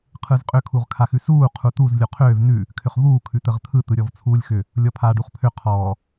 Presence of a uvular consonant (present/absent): present